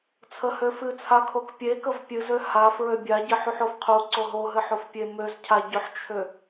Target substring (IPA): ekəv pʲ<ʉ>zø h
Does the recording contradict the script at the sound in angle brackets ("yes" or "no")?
yes